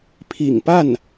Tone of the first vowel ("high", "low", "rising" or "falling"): low